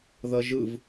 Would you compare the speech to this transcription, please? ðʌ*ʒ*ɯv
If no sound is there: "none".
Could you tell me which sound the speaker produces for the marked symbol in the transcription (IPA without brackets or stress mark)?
ʒ